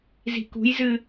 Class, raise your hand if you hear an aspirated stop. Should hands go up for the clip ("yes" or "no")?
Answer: no